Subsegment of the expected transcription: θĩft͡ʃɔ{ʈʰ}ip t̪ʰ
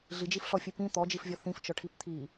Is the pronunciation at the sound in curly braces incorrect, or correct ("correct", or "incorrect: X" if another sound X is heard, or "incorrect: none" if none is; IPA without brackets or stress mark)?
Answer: correct